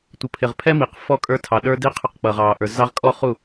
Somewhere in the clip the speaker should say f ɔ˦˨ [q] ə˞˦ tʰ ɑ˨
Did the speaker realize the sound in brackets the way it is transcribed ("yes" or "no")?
no